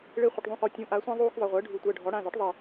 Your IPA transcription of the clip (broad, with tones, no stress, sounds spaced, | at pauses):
ɭ e˦ χʷ ə˩˧˩ ʈ ðˤ ũ˧˩ x ɔ˨˩˦ tʲ ũ˩˧˩ ʔ a˨˩˦ sʷ ã˦ ðˤ uː˦ x ðˤ ə˩˧˩ ʁʷ əː˩˥ ɖʱ u˨˩˦ tʷ əː˩˧˩ ɖʱ ɔ˩˥ ɽ ã˩˧˩ z ɔ˩˥ ʈ ðˤ e˧˩